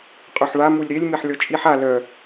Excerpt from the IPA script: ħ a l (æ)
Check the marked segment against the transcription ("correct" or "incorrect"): incorrect